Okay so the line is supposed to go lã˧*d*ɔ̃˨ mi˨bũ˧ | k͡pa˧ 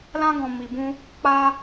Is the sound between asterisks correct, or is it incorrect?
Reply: incorrect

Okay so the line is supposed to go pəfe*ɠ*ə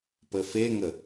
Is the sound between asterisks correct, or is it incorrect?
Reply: incorrect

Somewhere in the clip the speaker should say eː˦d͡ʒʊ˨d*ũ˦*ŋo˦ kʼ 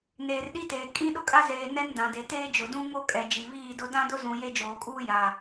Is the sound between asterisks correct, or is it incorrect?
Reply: correct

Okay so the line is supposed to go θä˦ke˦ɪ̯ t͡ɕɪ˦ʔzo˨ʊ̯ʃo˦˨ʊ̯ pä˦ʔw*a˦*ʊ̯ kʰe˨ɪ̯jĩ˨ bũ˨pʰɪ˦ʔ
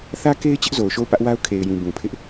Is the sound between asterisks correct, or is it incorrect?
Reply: correct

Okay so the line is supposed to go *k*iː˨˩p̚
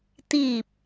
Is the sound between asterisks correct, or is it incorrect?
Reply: incorrect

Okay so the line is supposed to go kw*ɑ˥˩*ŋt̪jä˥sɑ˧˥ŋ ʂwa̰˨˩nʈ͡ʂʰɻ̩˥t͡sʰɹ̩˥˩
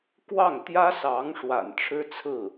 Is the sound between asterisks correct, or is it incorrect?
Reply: correct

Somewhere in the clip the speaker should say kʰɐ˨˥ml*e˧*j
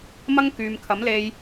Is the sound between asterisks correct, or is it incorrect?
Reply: correct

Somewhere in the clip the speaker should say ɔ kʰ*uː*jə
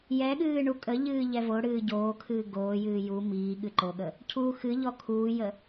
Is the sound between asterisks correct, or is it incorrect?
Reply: correct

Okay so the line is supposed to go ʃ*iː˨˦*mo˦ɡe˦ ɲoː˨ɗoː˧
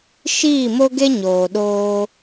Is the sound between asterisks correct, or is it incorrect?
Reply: incorrect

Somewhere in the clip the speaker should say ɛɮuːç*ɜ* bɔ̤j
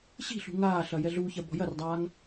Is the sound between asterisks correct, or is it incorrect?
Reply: correct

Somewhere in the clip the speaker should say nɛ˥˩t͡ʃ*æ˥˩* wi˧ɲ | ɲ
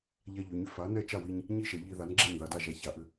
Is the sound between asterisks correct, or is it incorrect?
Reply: incorrect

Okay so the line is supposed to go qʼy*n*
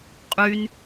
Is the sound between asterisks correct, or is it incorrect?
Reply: correct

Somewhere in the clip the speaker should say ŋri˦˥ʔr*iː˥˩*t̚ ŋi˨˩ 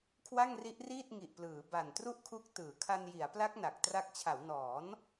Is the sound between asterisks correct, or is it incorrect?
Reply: correct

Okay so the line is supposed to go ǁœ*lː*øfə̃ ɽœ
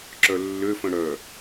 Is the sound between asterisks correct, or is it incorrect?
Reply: correct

